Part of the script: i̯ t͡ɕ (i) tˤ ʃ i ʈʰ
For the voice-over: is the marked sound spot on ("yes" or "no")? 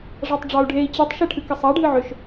no